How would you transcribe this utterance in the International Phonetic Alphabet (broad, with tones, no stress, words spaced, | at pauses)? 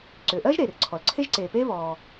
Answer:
ǀʏː˩ʔɜː˥ʒɾeː˩rǀʰɔ˩l ǀʰe˥ʒǀeː˩peː˥ βɔː˩